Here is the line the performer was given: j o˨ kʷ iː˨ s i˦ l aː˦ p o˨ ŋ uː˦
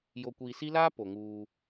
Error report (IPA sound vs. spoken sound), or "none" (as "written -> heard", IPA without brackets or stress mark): none